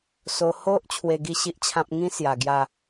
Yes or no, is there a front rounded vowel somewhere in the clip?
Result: no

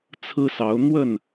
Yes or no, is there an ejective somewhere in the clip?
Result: no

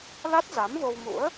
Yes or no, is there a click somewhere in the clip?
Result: no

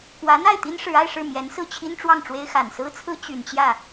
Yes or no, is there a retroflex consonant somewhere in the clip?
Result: yes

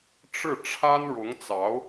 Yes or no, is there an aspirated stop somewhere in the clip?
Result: yes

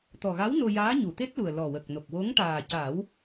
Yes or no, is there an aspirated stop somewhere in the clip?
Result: no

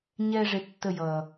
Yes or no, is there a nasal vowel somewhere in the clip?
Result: no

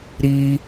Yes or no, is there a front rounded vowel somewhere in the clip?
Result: no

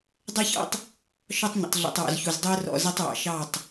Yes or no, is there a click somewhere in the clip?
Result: no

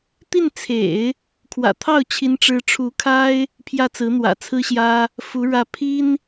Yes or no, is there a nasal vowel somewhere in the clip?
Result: no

